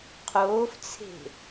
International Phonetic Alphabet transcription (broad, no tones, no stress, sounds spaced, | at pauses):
qʰ oː f t͡sʰ e̤